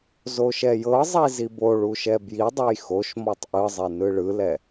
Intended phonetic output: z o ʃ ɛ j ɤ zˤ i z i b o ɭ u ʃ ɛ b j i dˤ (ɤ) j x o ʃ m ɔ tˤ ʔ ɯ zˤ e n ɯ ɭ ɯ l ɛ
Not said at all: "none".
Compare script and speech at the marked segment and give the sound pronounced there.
ɤ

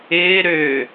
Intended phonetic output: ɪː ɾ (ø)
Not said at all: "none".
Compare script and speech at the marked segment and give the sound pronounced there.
ø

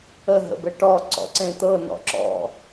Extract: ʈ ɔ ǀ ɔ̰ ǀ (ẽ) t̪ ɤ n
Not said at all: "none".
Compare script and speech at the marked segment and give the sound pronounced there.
ẽ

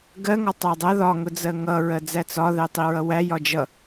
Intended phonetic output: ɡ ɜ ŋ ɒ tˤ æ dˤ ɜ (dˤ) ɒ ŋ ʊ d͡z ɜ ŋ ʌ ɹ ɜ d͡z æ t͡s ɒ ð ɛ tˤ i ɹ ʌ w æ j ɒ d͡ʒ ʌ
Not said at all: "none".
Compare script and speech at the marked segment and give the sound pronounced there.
ð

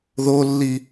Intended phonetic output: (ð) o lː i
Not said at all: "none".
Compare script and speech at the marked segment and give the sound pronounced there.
ð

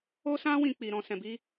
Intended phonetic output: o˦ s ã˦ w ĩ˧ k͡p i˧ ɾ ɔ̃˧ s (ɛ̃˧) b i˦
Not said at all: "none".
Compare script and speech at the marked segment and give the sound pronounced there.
ɛ̃˧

